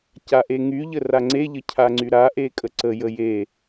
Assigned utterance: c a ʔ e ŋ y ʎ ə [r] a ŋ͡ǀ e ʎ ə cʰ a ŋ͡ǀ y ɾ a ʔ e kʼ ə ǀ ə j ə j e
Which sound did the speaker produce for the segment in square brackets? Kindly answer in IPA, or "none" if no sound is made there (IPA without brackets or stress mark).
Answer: r